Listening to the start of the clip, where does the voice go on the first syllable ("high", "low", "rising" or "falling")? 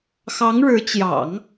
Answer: rising